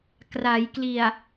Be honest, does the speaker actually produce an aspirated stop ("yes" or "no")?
no